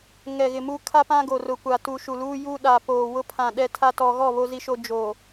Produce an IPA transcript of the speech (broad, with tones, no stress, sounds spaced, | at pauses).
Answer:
ŋ ɛ˨ ɣ ɪ˨ m u˦ kʰ a˦ p ã˦ ɡ o˨ r ʊ˨ kʷ a˨ t u˨ ʃ u˨ l uː˦ j uː˦ ɗ a˨ p oː˨ w ʊ˦ pʰ ã˨ ɗ ɛ˦ tʰ a˦ t ɔ˨ ɣ ɔ˦˨ β o˦ z i˦ ʃ o˦ d͡ʒ o˨